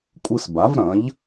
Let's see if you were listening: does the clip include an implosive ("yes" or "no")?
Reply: no